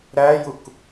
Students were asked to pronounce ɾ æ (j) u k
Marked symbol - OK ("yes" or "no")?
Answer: yes